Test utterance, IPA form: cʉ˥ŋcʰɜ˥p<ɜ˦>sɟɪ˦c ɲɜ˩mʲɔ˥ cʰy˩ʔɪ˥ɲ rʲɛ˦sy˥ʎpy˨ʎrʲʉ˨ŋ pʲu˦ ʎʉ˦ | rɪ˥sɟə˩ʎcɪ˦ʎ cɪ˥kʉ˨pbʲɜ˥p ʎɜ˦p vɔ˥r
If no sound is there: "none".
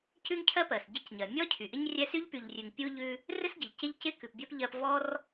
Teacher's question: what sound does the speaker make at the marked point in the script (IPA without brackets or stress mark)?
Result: ɜ˩